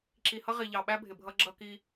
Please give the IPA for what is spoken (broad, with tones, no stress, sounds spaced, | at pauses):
ǁ i˨ h ʌ˦ ʁ i˨ ʎ ɑ˨ ɓ æ˦ bʱ ɪ˨ bʱ ʌ˦ ɡ͡ǁ ʌ˦ k i˦